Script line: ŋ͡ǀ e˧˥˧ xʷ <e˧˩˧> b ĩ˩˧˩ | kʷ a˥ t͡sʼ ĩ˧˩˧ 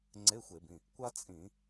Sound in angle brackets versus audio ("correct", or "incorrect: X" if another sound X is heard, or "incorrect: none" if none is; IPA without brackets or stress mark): correct